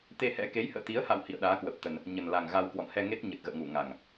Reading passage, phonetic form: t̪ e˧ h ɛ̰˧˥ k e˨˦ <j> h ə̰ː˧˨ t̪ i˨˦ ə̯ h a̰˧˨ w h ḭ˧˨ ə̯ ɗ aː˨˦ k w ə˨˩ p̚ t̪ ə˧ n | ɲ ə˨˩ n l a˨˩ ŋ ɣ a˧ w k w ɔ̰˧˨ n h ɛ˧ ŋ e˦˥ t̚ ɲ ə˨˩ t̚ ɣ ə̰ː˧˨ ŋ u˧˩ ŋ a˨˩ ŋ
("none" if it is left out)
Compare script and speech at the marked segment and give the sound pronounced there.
j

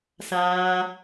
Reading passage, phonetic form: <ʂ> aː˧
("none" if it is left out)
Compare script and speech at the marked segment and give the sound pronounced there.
s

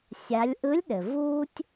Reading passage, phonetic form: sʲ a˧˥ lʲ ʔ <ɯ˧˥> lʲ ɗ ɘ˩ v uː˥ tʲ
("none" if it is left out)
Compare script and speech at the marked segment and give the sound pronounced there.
ɯ˧˥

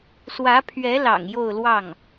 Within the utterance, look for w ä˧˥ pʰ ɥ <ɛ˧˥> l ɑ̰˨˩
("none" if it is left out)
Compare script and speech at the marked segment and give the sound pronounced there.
ɛ˧˥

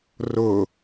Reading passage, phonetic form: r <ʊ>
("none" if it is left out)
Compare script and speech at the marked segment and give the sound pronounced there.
ʊ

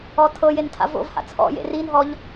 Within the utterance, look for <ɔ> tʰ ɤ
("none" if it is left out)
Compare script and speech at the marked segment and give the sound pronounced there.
ɔ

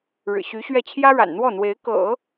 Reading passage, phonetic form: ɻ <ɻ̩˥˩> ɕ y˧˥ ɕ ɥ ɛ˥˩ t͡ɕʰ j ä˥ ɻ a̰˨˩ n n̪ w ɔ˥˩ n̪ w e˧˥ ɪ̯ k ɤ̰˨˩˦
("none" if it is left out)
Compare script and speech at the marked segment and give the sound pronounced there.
ɻ̩˨˩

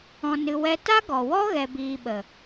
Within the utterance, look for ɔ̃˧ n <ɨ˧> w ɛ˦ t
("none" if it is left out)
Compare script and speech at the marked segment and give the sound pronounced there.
ɨ˧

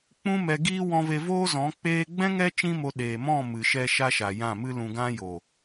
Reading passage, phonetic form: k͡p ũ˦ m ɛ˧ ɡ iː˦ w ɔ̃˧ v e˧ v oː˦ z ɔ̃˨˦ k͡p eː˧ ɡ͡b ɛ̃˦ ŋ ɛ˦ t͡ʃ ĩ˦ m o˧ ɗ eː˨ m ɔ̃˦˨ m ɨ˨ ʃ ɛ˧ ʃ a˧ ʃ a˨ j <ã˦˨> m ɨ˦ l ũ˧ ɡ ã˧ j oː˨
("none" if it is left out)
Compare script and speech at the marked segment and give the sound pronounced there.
ã˦˨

